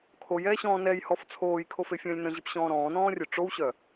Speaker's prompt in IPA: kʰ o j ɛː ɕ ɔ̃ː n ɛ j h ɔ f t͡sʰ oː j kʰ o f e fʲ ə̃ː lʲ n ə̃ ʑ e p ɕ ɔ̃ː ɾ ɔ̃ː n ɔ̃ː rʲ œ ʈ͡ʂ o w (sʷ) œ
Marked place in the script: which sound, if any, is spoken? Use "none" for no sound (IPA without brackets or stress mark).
ɕ